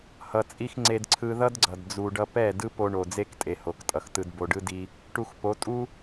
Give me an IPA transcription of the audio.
hʌ˧t͡sʼi˦x ŋ͡ǀe˧dǀʰɯ˧ðʌ˦dɡ͡ǀʌ˨d d͡zu˨ɖʌ˧pɛ˦˨ dɯ˦po˧ɳo˨ d͡ze˦ktʼe˨ ho˨ktʼʌ˨xtɯ˧d bo˨ɖɯ˧ di˧ | ʈu˧xpo˨˦ tʼu˦

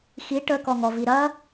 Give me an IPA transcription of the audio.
xi ʈəkɔŋɔvi ɾɐ

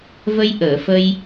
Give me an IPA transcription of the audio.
və˧jʔəː˨˩˨fə˧j

